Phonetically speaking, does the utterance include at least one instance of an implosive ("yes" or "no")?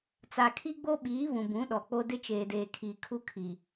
yes